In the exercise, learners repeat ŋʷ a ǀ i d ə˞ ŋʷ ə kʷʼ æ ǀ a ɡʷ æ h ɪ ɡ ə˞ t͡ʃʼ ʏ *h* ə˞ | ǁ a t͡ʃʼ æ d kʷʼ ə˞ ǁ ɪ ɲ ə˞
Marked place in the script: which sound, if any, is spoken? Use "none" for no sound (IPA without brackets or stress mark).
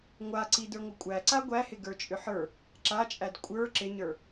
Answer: ħ